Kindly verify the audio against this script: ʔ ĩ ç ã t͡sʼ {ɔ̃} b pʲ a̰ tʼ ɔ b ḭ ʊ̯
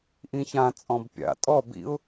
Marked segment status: correct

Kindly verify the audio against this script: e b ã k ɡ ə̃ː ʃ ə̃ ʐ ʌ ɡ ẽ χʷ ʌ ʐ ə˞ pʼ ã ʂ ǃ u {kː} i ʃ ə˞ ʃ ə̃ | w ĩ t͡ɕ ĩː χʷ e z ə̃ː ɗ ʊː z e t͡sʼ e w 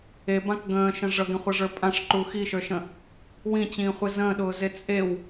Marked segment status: incorrect: x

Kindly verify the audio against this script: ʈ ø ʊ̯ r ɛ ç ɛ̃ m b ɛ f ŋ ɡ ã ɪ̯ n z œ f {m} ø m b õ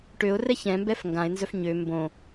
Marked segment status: incorrect: ɲ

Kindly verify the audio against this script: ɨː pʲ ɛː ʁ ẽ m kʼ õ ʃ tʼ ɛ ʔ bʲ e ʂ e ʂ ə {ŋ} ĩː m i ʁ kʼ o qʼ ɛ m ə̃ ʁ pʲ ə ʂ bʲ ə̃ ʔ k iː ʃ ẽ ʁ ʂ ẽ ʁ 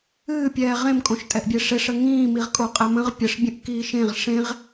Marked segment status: correct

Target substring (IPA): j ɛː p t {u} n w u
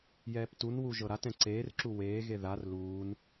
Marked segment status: correct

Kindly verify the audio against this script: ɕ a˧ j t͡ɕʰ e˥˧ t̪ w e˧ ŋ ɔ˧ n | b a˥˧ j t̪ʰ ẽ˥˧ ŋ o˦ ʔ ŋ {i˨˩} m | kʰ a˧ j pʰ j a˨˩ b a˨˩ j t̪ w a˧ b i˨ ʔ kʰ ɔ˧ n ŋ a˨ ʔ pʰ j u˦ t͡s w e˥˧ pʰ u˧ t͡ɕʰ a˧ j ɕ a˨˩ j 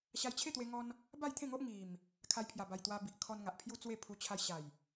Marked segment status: correct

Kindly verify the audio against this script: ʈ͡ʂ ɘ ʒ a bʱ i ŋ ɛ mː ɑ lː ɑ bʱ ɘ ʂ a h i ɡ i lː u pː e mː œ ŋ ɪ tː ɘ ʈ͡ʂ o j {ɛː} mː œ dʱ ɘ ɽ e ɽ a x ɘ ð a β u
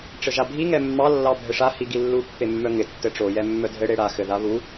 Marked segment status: incorrect: ɛ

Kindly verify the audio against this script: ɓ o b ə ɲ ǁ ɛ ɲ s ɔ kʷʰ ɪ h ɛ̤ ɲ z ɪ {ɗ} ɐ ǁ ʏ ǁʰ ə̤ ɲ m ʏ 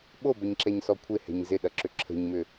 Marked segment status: correct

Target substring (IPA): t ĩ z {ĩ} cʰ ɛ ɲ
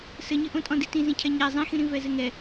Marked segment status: correct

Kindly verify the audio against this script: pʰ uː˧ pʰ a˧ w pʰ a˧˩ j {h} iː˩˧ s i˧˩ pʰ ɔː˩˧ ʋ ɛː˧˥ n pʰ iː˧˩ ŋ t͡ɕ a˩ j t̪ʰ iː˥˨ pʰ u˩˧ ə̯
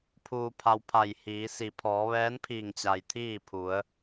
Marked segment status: correct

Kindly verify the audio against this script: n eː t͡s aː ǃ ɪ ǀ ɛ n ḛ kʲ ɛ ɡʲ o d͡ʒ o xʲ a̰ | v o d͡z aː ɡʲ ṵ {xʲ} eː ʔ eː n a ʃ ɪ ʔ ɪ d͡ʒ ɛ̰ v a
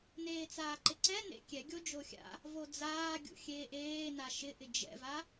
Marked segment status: correct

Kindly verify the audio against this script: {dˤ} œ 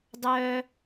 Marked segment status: correct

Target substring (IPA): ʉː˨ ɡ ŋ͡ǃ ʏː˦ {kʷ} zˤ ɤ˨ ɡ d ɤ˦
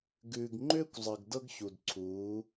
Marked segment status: correct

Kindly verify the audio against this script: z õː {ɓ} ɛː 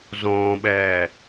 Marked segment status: correct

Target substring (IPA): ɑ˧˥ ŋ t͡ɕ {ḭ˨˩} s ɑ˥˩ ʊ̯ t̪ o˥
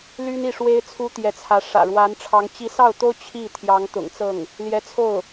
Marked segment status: incorrect: i˧˥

